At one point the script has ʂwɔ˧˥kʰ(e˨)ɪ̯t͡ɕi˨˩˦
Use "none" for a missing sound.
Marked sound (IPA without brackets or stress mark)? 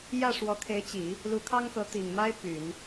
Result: e˧˥